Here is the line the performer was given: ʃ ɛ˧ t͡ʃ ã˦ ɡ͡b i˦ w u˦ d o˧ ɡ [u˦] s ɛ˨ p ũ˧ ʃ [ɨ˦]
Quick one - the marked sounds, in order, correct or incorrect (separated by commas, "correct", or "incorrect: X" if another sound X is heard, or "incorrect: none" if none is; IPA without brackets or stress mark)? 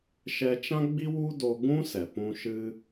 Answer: incorrect: ũ˦, correct